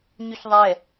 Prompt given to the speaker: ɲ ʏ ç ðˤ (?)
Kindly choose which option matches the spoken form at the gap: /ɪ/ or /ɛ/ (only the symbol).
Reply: ɛ